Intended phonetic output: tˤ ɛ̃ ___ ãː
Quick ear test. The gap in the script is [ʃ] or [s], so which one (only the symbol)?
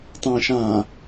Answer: ʃ